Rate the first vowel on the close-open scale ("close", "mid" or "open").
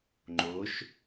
mid